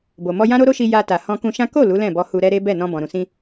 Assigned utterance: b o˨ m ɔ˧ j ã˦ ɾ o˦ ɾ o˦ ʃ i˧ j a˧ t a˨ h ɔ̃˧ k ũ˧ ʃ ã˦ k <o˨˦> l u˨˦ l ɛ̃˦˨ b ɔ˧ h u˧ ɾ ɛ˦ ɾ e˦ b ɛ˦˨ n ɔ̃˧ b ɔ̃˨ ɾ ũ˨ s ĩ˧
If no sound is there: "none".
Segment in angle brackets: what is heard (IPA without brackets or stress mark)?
o˦˨